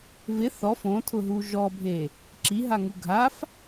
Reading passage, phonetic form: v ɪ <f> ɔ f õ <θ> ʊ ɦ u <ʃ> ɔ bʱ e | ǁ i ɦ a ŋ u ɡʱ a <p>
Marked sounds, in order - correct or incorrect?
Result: incorrect: θ, incorrect: tʰ, incorrect: ʒ, incorrect: f

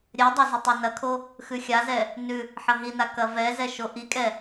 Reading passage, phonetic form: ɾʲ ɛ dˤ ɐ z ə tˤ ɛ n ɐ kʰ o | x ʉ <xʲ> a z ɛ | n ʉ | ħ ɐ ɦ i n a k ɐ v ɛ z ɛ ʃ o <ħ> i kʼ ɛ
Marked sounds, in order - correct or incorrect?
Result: correct, incorrect: ʔ

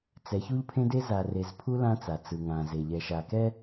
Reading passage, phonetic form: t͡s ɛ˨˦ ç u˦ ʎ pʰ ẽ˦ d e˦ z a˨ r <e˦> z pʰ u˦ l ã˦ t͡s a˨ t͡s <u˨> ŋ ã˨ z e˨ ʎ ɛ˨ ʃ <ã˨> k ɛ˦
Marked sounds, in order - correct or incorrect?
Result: incorrect: e˨, incorrect: ɯ˨, incorrect: a˨

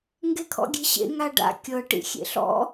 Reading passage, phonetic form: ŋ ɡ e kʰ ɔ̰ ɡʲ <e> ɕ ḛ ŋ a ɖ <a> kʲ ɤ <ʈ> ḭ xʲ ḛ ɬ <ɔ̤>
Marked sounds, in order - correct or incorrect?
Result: incorrect: e̤, incorrect: a̰, correct, incorrect: ɔ̰

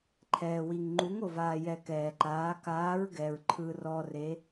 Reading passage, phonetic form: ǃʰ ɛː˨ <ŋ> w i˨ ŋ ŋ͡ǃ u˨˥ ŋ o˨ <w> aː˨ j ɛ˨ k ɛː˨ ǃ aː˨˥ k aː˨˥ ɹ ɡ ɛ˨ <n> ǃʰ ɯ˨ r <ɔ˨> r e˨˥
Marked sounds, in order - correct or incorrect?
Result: incorrect: none, incorrect: v, incorrect: ɹ, correct

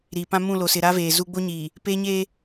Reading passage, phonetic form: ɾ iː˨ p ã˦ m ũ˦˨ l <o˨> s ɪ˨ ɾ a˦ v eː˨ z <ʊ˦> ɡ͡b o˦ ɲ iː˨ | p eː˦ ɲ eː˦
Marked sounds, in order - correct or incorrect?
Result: correct, incorrect: u˦

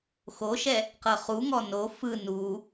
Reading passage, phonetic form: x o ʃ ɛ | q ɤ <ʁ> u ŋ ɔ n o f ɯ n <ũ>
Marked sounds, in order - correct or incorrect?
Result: incorrect: χ, incorrect: u

